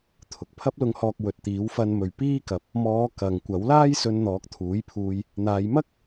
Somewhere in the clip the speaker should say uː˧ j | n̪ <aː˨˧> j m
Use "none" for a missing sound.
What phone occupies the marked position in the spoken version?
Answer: aː˨˧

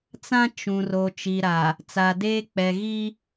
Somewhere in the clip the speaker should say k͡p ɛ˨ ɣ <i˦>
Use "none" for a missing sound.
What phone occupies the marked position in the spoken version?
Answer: i˦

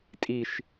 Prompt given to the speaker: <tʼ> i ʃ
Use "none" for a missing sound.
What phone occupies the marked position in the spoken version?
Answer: tʼ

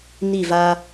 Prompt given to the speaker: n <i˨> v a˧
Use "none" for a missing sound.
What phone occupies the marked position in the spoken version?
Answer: i˦˨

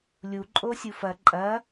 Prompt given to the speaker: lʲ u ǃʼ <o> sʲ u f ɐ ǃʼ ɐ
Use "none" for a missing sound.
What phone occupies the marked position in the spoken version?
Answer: o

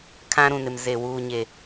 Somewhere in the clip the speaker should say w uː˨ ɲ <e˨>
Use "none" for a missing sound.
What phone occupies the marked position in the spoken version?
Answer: e˨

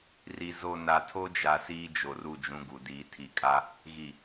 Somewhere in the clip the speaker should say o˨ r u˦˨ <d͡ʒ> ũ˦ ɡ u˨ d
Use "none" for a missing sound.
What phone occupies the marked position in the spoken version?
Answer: d͡ʒ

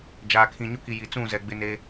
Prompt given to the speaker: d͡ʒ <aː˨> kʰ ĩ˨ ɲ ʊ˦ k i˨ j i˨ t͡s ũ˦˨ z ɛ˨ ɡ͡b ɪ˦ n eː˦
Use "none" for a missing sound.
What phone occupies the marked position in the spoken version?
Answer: aː˨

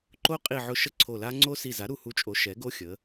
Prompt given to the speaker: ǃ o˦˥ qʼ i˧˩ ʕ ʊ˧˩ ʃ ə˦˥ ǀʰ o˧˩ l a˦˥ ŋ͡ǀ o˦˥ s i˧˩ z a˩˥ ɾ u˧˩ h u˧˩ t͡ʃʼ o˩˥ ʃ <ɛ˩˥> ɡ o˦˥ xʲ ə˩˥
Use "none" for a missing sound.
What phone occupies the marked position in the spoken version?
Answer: ɛ˩˥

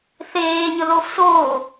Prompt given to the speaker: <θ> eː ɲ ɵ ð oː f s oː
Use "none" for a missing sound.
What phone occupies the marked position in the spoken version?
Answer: θ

